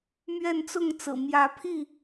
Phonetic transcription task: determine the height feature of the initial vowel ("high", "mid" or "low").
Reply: mid